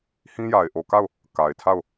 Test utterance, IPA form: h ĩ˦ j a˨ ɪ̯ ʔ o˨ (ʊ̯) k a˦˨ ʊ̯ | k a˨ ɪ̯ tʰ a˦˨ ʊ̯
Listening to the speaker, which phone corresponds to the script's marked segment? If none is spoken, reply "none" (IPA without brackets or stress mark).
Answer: none